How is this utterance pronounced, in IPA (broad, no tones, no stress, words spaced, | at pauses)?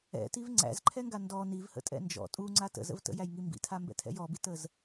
ɛ̰tiv ŋ͡ǀæ̰zǃʰɛŋɡa ndɔ nivhə̰tʼɛ̰ nd͡ʒɔ̰ tʼuŋ͡ǀa tə̰zə̰v tə̰jæjŋi mbḭtʰambɛ̰tʰɛ̰j ɔbitəz